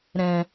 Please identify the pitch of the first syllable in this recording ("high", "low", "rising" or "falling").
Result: low